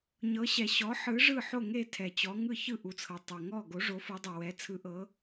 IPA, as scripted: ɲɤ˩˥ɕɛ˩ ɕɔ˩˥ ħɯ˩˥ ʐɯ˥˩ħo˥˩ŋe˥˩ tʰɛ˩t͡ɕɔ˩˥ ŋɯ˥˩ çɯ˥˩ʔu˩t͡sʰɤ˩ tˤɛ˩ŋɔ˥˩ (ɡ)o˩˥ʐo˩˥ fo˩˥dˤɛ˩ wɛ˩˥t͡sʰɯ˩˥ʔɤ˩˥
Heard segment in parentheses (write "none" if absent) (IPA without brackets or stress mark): ɡ